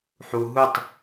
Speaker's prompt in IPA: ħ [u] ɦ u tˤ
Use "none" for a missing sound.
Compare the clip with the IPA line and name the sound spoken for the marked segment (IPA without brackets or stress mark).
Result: u